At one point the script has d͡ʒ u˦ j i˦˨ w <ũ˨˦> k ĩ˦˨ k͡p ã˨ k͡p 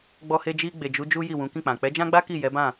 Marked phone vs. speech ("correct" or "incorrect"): correct